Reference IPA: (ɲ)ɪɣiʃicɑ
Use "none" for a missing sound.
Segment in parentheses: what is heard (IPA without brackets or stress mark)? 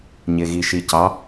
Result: ɲ